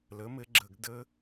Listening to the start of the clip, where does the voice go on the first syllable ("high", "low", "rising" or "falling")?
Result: rising